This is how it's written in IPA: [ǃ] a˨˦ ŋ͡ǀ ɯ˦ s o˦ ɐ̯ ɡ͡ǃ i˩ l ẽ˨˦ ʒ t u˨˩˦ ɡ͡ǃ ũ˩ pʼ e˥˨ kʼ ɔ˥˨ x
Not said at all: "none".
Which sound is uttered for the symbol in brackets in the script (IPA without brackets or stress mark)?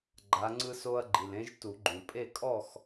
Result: ɡ͡ǃ